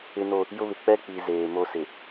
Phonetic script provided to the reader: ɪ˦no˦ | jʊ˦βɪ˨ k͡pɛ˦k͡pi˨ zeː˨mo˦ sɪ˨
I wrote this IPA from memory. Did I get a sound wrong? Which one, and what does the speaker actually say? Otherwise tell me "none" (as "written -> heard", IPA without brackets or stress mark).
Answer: none